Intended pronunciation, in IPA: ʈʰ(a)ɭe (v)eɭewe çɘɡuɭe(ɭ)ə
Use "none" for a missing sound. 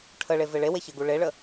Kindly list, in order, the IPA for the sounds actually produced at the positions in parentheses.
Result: ə, v, ɭ

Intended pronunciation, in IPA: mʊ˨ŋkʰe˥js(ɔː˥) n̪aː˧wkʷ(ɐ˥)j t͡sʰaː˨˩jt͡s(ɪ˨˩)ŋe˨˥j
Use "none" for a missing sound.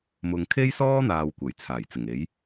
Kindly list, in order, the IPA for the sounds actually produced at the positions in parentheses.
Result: ɔː˥, ɐ˨˩, ɪ˨˩

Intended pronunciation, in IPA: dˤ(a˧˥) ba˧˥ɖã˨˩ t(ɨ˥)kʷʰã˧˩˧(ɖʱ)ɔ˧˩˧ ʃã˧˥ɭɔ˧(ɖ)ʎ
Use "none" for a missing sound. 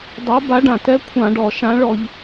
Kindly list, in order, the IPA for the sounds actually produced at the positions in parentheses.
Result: a˧˥, ɛ˥, ɖ, none

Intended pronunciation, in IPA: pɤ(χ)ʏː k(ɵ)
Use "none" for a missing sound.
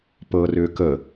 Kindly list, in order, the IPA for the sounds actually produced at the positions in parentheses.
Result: r, ə

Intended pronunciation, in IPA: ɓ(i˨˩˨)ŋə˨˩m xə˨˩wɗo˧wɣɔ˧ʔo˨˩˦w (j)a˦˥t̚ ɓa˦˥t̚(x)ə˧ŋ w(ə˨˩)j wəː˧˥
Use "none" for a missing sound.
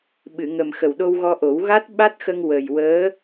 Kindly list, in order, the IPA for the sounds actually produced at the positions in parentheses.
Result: ɨ˨˩˨, ɣ, x, ə˨˩

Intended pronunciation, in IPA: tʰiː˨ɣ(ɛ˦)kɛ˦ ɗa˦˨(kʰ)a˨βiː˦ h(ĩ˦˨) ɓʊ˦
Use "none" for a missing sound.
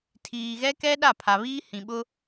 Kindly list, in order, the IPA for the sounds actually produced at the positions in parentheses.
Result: ɛ˦, pʰ, ĩ˨

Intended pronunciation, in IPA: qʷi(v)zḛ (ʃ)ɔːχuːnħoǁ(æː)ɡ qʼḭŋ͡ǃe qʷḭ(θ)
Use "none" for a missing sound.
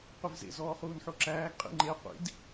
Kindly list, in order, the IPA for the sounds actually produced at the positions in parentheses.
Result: v, z, æː, d

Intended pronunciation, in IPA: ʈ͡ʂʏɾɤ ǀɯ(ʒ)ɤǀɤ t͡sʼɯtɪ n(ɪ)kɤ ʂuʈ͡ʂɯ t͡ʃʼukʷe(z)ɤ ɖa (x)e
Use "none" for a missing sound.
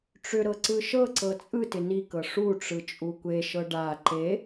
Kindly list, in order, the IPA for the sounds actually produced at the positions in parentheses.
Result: ʃ, i, ʃ, ǃ

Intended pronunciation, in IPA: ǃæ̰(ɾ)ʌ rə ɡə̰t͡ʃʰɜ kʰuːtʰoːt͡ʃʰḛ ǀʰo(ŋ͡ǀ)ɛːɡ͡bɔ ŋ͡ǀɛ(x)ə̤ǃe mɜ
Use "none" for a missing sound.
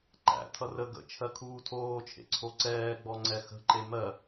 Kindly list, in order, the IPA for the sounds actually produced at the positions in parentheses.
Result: tʰ, ǀ, x

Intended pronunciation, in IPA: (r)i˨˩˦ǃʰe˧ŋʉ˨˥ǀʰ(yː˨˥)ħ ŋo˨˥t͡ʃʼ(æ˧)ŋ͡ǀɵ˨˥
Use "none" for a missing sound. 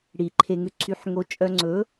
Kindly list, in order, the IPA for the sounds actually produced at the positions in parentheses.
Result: ɽ, y˨˥, œ˧

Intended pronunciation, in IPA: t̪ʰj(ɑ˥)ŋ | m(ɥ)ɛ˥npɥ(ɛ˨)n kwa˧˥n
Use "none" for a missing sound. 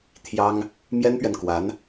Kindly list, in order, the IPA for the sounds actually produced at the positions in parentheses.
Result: ɑ˥, j, ɛ˨

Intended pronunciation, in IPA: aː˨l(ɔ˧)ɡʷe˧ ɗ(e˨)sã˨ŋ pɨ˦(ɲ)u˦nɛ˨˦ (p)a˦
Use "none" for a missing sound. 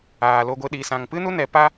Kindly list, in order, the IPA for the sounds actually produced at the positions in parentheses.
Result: o˧, i˨, n, p

